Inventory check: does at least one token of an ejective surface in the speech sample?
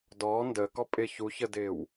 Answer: yes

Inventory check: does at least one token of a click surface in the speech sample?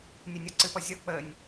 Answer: yes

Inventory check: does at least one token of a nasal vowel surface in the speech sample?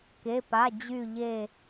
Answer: no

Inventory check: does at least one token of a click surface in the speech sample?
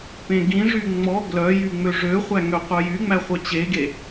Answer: no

